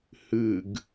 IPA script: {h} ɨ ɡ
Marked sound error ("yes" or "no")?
no